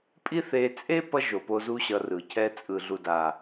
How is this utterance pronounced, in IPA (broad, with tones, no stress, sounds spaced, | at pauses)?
pʼ i˦ θ e˧ t͡sʼ e˦ p ʌ˦ ʒ o˨ p o˧ z u˦ ɕ ʌ˧ r ɯ˨ cʰ ɛ˧ t͡sʼ ɯ˨ ɮ u˨ d a˨